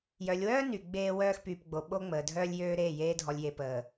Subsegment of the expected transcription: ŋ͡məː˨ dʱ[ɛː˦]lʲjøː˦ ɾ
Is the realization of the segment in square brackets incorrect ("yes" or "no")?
yes